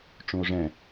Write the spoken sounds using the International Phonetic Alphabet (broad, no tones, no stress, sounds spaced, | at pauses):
ʈ͡ʂ ũ o̯ ʐ ɛ̃